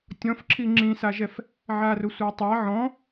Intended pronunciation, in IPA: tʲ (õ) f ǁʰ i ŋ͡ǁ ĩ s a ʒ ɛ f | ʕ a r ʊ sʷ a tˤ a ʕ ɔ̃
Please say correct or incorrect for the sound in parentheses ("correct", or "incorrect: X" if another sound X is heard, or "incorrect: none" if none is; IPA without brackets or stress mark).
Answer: incorrect: ɔ̃